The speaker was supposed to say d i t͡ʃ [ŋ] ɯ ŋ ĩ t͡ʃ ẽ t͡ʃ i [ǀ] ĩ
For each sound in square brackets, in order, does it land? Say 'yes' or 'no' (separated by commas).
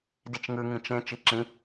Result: yes, no